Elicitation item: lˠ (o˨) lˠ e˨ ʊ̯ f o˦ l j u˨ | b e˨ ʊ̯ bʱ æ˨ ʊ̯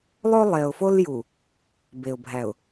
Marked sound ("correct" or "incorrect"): incorrect